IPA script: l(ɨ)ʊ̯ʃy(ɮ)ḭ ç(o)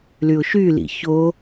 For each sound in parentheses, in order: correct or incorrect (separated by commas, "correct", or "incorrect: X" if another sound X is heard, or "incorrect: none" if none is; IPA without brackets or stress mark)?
incorrect: y, incorrect: l, correct